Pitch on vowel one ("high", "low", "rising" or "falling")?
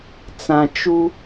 low